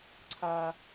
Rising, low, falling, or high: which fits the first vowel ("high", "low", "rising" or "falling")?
high